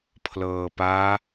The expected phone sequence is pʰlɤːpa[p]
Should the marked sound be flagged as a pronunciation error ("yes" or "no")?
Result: yes